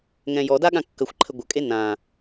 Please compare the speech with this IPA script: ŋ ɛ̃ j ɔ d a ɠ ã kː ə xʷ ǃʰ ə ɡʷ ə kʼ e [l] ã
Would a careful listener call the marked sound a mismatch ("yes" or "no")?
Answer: yes